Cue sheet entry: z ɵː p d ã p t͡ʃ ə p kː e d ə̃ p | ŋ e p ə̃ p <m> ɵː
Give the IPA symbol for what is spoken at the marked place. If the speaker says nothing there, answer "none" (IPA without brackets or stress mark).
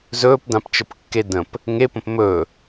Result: m